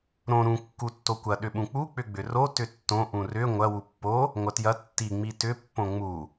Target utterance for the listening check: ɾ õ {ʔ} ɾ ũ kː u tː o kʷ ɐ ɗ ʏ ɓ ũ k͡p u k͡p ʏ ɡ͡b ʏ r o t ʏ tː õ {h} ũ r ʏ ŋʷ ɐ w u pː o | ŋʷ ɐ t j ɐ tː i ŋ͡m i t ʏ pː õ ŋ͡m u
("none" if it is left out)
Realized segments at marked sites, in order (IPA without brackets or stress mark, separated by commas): none, ʔ